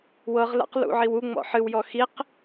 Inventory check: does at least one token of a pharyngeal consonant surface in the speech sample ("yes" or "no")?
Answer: yes